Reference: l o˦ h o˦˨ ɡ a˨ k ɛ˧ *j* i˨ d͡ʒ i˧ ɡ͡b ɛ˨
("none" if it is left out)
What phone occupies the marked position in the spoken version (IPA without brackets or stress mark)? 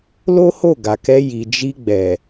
j